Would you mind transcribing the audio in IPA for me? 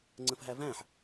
ŋ͡ǀ ə̃ f ɦ æ v æ̃ ħ

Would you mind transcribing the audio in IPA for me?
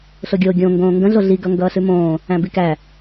ɬ o ɡʲ o ɡʲ õ ŋ ɡ õː ŋ ɡ ə̃ ɮ o ɮ i ɡ ʌ ŋ ɡ ʌː ɬ ʉ m õː | æ̃ b i k æ

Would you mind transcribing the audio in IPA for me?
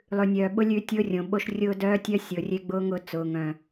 lˠ ʉ˨ nʲ œː˨ ɓ ʊ˦ lʲ ʉ˦ tʲ ʊː˦ rʲ õ˨ ɓ o˦ ʃ rʲ ʊː˦ d œː˦ tʲ œ˦ sʲ ʊː˨ rʲ e˦ ɡ͡b ʊː˦ ŋ ʊː˦ t͡s ʊː˨ ŋ œ̃˨

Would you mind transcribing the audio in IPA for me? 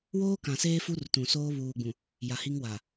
w oː˦ k ã˨ s eː˦ f u˦ r t ũ˨ s oː˦ β uː˨ ɡ͡b ũ˨ | j a˨ h i˦ ŋ w a˨

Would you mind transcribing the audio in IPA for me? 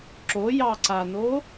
ǁ o j ɑ ǀ a n o

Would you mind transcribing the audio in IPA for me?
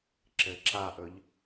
ǁ ɘ ǁ a ʔ ɵ ʎ

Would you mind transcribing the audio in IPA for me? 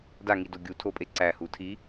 d a ŋ i d o ɡʲ u tʰ o pʼ e ǀ æ h u tʰ i

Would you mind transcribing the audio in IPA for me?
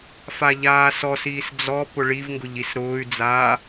f a ʎ aː s ɔ s iː s d͡z ɔ p ʊ ɭ i v ŋ ɡ ʊ ʎ i s ɾ ʊː y̯ d͡z aː

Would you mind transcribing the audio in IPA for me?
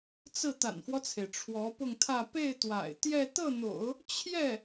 t͡s ɹ̩˥˩ t̪ a̰˨˩ n f w ɔ˦ t͡sʰ e˩ ɪ̯ ʈ͡ʂʰ w ɔ˧˥ p ʊ˥˧ ŋ t̪ʰ ä˥˧ p e˥˩ ɪ̯ t̪ w a̰˨˩ ɪ̯ t̪ j ɛ˥˧ t̪ ɤ˥˩ n̪ o̰˨˩˦ ʊ̯ | t͡ɕʰ j ɛ˥˩

